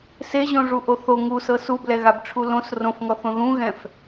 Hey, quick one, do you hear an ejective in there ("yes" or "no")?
no